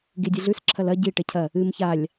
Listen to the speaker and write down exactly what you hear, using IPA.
ɡ i dʲ ɨ ɮ ʉ s ǁʰ ɐ l ɐ ɟ i ʈ e cʰ ɐ | ɨ m ç a lʲ

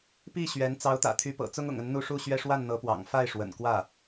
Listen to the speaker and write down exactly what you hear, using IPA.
p i˥˩ ɕ ɥ ɛ˧˥ n t͡s ɑ˧˥ ʊ̯ t̪ ä̰˨˩ t̪ʰ y˧˥ p ɤ̰˨˩ t͡s ʊ˥ ŋ ʊ̰˨˩ ŋ ə˧˥ n n̪ u˥˧ ʂ u˥˧ ɕ ɥ ɛ˥˧ ʂ w a˥˩ n n̪ ɤ˧˥ p w ɑ̰˨˩ ŋ f a˥˩ ɪ̯ ʂ w ə̰˨˩ n k w ä˥˩

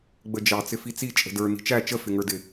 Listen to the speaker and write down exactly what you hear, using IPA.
ɡ͡b ə d͡ʒ ɑ t͡s ɪ f i t͡s i t͡ʃʼ ə̤ d ə˞ n i̤ t͡ʃ æ t͡ʃ ə f ɪ ŋ ə˞ d ɪ

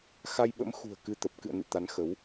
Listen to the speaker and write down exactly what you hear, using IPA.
x a˧ j ɓ ə̰˧˥ m x ṳ˨˩ ə̯ k ɨ˧ t̪ ə˨˩ p̚ k ɨ̰˧˨ ə̯ n ɨ̰˧˨ t̪ a˨˦ n x ə˨˦ w

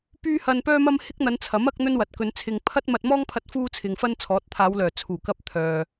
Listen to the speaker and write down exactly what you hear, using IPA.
p yː˥ h ɐ˧ n p œː˥ m ɐ˥ m h ɪ˥ k̚ n̪ ɐ˨˧ n t͡sʰ ɐ˨˥ m ɐ˥ k̚ n̪ ɵ˥ n w ɐ˨ t̚ k ɵ˨˧ n t͡sʰ ɪ˧ ŋ pʰ ɐ˥ t̚ m ɐ˧ t̚ m ɔː˥ ŋ pʰ ɐ˧ t̚ f uː˥ t͡sʰ ɪ˨ ŋ f ɐ˥ n t͡sʰ ɔː˨˥ t̚ t̪ʰ aː˨˧ w l œː˨˩ t͡sʰ uː˨˩ k ɐ˧ p̚ t̪ʰ œː˨

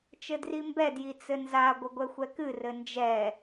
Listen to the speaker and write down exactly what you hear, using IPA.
t͡ʃ ɘ d r i m b ɛ d j i t͡s ɘ n z a ɡʷ ɘ ɡʷ ɛ xʷ ɛ k ɨ r ɘ n d͡ʒ ɛ

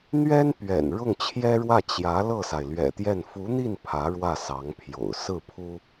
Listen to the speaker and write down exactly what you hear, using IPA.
n̪ ɥ ɛ˥ n p ɥ ɛ̰˨˩ n ɻ ʊ˥˩ ŋ t͡ɕʰ j ɛ˥ ɻ w ä˥˩ t͡ɕ j ä˧˥ l ɤ˥˩ s a˩ ɪ̯ l ɥ ɛ̰˨˩ t̪ j ɛ˥˩ n f u˧˥ n̪ i˥˩ n pʰ ä˧˥ ɻ w ä˥˩ s ɑ˧˥ ŋ pʰ j o̰˨˩ ʊ̯ s ɹ̩˥˩ pʰ u˥

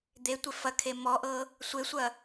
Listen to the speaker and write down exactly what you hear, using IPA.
d̪ e tʷ e f ɐ kʰ e m ɔ ʔ ɤː | sʷ e sʷ ɐ

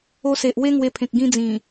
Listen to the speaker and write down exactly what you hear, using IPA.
o˧ s e˨ ʔ w e˦ ŋ w e˧ pʰ ẽ˨ k̚ ɡ ĩ˧ d͡z ĩ˨˩

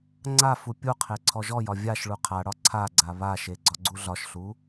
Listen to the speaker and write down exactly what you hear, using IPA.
ŋ͡ǀ a f u pʲ u qʰ e ǀʰ ɔ ʒ ɔ j ɒ vʲ a ʃ ɭ u qʰ a ɽ ɒ ǀʰ a ɡ͡ǀ a β a ʃ e ɡ͡ǀ ɒ ɡ͡ǀ u ɮ ɒ ʃ ɬ u

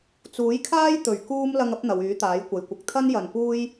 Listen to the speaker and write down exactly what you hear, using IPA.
t͡s uː˨˥ j kʰ aː˥ j t̪ ɵ˨˩ ɥ k uː˥ m l ɐ˧ ŋ ɐ˥ p̚ n̪ ɐ˨˧ w yː˨˥ t̪ aː˨˥ j kʷ ɐ˨ j kʷ ɪ˨ k̚ t̪ʰ ɐ˥ n j ɐ˨ n p uː˥ j

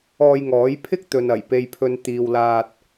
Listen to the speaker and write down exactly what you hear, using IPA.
ɔː˧ j ŋ ɔː˨˥ j pʰ ɪ˥ k̚ t̪ ɵ˨ n ɐ˨˩ j p e˨ j pʰ ɵ˨ n t̪ iː˨ w l aː˧ t̚

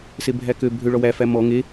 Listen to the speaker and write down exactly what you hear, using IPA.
s e bʱ æ k ø bʱ ø ɭ ɔ w æ f æ m ɔ ŋ e

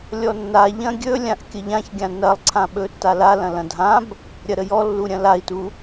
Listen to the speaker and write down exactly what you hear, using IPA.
lʲ ɔ nː a ʎ ɐ̃ ɡʲ ɵ lʲ ã ʔ kʲ ə ʎ ã ç ɡʲ ã n ɐ lˠ ǀʰ ã ɓ ɵ tː a l a l ɐ̃ l ɐ̃ dʱ ã b | ɾʲ ɐ ɾ ə j ɔ lː u ɾʲ ɐ̃ l a i̯ t u

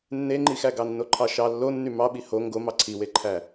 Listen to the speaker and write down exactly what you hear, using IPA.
nː e ŋ͡ǃ i x æ ɡ ɑ nː o ǃʰ ɑ ʃ ɑ lː o nː y m ɑ ɓ i h o ŋ ɡ o m ɑ ǀʰ i w e ǃʰ æ

